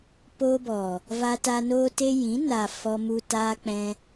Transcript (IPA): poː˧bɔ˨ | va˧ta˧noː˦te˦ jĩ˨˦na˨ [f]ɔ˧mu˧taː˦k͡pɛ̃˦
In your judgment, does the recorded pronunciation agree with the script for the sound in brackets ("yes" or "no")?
yes